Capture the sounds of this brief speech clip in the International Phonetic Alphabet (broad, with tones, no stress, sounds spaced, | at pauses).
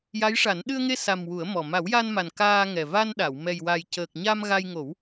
j a˧˥ j ʂ a˨˩˦ n ɗ ɨ˧ ə̯ ŋ e˧ s a˨˩ m w u˨˩˦ ə̯ m ɔ˨˩ m a˨˩˦ w j a˧ n m a˨˩ n k aː˧ ŋ ɛ˨˩ v a˧ n ɗ a˨˩˨ w m ɛ˨˩ j w a˨˩ j c əː˨˩ k̚ ɲ a˧ m ɣ a˧ j ŋ o˨˩˦ w